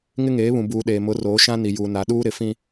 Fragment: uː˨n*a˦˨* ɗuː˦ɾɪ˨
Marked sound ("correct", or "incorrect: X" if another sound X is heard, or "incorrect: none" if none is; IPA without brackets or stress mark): incorrect: a˨